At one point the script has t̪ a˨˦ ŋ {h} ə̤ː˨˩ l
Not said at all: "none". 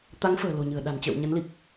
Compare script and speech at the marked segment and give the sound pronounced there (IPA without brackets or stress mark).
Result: f